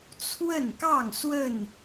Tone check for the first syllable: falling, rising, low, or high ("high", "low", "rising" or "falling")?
falling